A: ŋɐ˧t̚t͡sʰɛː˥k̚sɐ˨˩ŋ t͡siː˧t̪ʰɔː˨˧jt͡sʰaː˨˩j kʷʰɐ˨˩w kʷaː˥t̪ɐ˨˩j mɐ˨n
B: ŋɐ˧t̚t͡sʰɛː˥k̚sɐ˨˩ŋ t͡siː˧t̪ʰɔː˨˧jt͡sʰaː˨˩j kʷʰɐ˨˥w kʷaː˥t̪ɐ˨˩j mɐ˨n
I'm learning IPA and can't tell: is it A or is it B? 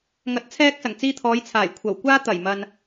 A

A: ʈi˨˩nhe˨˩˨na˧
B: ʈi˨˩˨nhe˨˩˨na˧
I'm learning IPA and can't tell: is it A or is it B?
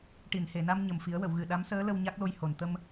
B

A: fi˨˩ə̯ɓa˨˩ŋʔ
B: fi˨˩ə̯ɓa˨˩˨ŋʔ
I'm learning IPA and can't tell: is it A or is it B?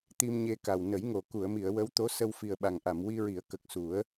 A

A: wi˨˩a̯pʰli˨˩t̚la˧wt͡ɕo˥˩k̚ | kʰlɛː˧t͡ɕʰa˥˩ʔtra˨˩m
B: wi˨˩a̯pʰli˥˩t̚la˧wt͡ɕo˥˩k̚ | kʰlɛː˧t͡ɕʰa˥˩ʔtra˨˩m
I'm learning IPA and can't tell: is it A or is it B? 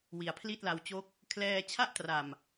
B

